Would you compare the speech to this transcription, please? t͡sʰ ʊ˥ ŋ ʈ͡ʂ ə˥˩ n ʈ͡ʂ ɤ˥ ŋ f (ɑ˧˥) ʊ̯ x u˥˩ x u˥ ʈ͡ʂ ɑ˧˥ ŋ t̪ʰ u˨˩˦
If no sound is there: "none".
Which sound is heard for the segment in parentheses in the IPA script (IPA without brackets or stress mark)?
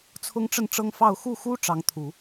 ɑ˥˧